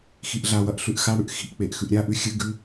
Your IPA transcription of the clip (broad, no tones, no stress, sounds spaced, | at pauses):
x i ʔ ɮ a w ɐ ʔ ɬ ʉ ʔ x a ɽ ʉ ʔ x i̤ ʔ k͡p e ʔ x ʉ ʔ ɾʲ a ʔ ʉ xʲ ɨ ɡ ʉ